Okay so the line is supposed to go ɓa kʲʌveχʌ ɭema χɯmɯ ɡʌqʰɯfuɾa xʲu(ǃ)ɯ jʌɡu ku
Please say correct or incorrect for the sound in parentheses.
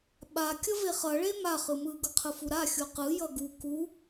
incorrect